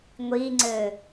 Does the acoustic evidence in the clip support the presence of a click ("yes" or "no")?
yes